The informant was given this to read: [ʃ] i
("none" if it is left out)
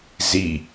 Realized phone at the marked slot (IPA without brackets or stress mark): z